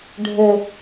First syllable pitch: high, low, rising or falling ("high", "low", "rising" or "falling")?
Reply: high